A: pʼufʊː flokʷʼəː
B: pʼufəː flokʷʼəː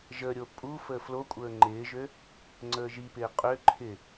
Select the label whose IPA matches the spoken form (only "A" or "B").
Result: B